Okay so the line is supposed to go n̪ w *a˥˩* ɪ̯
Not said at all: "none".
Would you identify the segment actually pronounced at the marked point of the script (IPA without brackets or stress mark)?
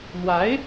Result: a˧˥